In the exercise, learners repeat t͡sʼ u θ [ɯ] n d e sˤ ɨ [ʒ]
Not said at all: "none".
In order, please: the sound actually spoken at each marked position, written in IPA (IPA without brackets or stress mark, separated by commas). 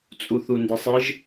u, ʒ